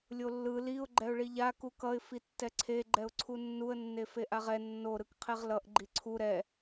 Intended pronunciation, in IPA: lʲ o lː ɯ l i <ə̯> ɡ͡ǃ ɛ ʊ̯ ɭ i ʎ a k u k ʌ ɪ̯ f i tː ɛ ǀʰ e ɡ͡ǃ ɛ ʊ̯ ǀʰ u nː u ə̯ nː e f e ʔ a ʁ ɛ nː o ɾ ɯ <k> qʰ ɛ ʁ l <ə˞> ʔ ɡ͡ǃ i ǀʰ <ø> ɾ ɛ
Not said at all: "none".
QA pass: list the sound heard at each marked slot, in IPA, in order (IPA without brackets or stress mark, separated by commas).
ʊ̯, k, ʌ, u